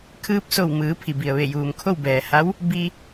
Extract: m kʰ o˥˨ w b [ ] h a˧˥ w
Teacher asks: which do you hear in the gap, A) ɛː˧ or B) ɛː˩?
B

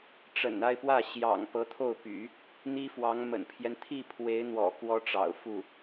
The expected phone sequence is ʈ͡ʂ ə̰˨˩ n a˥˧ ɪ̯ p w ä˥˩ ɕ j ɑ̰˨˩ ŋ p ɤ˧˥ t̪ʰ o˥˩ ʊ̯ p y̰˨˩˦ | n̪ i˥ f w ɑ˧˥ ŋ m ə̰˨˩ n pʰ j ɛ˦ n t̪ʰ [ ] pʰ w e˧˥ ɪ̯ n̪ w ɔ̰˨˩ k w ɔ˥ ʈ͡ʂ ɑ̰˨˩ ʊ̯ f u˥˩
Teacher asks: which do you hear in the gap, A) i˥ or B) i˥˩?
B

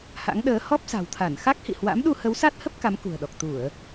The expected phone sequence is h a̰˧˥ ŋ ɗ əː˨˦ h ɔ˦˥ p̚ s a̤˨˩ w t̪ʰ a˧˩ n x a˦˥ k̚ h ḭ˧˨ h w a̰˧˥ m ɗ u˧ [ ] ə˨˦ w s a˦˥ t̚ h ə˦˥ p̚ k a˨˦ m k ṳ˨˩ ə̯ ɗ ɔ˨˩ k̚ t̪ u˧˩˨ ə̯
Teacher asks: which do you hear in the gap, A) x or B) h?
B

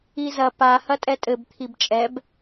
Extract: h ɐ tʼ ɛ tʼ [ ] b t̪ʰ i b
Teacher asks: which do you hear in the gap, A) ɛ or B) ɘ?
B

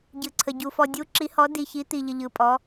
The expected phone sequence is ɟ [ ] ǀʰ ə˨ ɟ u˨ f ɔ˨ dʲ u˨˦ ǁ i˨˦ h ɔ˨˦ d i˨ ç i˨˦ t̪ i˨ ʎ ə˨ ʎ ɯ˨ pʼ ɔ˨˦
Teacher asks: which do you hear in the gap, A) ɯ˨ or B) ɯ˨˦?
A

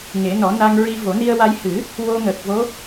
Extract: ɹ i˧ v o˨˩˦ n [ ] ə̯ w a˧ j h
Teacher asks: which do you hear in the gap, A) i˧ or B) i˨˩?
A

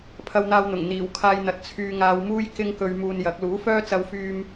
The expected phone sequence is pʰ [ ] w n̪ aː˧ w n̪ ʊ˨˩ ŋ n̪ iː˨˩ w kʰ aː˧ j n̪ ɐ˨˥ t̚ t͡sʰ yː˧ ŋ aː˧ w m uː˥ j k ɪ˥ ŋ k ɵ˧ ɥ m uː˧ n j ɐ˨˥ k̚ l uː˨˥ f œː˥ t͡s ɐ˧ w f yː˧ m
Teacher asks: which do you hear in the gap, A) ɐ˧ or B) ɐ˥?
A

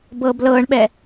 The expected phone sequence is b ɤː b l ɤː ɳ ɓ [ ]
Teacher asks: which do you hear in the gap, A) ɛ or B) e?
A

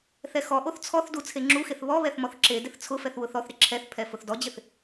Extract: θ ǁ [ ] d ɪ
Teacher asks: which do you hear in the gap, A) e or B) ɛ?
A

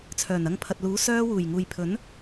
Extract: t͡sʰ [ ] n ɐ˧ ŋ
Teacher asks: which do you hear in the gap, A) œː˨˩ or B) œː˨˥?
A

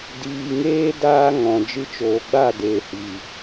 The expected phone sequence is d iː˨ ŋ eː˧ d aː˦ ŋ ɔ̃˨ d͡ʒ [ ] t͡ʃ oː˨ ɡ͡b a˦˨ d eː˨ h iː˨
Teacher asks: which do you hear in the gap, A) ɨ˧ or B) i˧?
A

